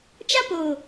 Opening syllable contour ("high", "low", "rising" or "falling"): high